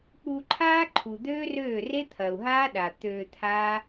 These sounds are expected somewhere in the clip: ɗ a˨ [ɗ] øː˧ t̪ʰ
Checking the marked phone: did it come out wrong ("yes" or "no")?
yes